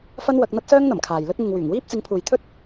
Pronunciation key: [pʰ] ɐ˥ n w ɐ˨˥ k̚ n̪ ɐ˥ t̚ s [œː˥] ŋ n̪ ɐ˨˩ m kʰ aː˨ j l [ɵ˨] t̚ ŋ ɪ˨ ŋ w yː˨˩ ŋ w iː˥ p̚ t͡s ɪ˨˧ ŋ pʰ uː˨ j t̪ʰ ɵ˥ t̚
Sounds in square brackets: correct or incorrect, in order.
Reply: incorrect, correct, incorrect

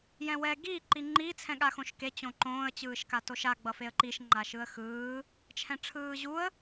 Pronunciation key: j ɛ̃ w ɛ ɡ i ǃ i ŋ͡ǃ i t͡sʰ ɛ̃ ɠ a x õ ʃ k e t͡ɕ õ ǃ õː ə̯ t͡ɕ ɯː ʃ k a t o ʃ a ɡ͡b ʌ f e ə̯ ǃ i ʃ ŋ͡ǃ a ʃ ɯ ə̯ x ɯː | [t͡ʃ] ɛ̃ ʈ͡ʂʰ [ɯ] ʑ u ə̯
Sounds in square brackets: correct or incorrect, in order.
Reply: incorrect, incorrect

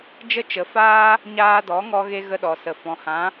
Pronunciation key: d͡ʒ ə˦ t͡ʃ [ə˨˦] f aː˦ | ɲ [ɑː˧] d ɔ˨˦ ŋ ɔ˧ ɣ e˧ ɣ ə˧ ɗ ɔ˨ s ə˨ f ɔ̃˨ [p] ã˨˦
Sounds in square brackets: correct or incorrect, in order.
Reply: correct, incorrect, incorrect

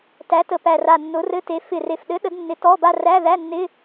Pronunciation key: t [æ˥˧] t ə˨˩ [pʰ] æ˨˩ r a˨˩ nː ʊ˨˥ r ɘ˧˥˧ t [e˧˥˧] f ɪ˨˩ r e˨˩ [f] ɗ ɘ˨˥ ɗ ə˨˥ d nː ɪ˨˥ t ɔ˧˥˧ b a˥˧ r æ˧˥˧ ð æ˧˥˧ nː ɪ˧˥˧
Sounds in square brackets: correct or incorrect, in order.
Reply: incorrect, incorrect, incorrect, correct

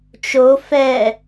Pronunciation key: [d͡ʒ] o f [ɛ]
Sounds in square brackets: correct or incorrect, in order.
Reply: incorrect, correct

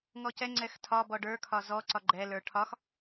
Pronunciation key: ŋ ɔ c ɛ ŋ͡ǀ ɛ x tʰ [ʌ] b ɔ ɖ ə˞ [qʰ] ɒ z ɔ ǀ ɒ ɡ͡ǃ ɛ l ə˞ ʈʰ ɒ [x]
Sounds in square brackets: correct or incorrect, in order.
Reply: incorrect, incorrect, correct

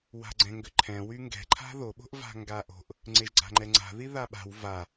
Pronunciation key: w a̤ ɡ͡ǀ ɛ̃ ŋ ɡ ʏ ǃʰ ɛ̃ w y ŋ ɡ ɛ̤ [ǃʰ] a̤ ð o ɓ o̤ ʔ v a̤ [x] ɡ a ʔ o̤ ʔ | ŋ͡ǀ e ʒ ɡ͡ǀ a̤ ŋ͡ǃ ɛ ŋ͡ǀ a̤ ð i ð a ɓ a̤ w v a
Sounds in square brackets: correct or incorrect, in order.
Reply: correct, incorrect

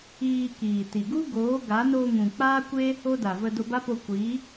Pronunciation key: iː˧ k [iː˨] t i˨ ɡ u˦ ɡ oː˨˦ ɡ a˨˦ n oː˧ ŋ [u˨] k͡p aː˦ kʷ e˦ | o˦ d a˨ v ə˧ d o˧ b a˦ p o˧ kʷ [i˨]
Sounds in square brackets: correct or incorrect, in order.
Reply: correct, incorrect, incorrect

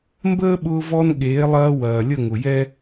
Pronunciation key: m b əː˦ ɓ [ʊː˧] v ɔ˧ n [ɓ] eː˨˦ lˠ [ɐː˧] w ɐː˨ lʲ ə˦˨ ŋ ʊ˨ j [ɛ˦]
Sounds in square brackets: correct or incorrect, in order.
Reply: correct, incorrect, correct, correct

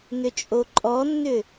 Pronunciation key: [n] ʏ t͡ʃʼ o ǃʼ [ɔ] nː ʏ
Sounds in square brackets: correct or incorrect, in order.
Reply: correct, correct

